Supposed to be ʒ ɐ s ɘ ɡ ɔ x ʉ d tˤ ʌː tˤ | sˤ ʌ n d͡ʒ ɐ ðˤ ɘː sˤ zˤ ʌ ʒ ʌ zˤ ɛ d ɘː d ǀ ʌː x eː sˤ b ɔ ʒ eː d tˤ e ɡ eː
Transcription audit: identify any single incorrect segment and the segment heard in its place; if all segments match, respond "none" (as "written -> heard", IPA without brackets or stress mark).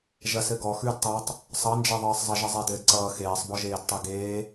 none